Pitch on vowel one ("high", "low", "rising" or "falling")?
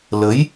rising